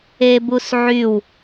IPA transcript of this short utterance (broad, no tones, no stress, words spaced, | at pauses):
ebusʕyw